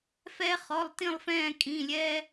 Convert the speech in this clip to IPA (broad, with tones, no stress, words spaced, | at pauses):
fɛ˥χɔ˧˥˧lˠtĩ˥˧lˠfɛ̃ː˥˧ kʼĩ˧˥˧lʲɛ˥